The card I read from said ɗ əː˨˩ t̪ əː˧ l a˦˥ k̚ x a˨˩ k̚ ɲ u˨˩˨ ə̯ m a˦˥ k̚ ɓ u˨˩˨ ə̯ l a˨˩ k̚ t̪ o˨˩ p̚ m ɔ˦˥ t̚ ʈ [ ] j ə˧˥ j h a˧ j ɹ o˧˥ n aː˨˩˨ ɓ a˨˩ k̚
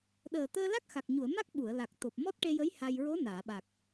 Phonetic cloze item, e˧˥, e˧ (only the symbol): e˧